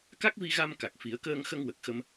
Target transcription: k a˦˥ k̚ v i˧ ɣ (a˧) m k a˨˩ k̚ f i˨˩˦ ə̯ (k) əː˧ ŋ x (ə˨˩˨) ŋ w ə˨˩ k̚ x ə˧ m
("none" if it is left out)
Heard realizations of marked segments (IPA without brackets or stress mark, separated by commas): a˧, k, ə˧